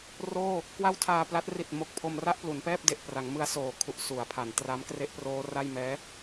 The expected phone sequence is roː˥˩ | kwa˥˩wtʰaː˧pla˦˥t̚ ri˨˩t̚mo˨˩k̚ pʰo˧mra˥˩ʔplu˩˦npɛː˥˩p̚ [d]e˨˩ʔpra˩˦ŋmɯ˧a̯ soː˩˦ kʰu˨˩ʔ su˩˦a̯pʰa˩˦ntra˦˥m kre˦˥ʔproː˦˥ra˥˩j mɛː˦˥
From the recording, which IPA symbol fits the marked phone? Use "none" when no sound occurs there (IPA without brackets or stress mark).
d